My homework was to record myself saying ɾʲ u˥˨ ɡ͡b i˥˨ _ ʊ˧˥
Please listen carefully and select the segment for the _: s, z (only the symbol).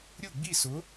s